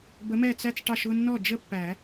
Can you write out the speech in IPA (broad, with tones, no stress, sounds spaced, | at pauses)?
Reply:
b ə˨˥ m ɛ˥˩ t͡s æ˥ t͡s ʈ ɑ˥˧ ʃ ʊ˥˧ nː ɔ˥˩ d͡ʒ ə˥ pː æ˨˩˦